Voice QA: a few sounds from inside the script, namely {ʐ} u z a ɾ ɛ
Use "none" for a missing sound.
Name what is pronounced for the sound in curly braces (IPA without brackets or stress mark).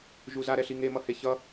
ʒ